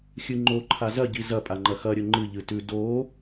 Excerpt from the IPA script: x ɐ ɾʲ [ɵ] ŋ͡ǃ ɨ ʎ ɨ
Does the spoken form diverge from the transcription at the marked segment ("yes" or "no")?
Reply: no